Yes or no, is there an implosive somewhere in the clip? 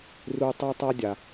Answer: no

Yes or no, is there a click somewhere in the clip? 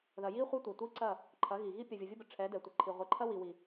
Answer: yes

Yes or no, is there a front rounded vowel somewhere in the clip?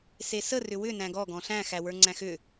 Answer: yes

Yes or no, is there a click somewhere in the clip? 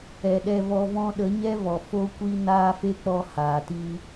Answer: no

